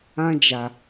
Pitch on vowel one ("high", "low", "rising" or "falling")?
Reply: high